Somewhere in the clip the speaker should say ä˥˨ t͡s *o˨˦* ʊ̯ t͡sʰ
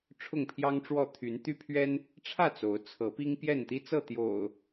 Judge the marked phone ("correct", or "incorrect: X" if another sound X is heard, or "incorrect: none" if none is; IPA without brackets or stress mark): correct